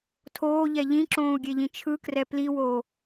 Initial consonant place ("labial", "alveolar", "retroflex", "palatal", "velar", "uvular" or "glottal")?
alveolar